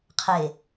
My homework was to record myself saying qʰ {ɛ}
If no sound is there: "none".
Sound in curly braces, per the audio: e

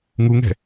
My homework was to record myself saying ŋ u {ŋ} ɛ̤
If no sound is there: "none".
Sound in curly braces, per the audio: ŋ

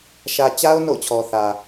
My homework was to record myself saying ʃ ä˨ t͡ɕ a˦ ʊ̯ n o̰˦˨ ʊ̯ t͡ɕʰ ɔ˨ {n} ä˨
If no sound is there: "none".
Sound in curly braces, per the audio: θ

